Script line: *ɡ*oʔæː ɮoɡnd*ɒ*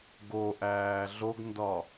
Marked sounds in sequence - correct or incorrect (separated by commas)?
correct, correct